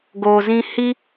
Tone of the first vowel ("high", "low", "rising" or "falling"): low